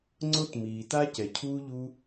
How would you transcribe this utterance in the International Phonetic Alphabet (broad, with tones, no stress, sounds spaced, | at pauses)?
ŋ͡ǀ o˧ t m iː˩ t a˧ c ɛ˩ cʰ uː˧ ʎ u˧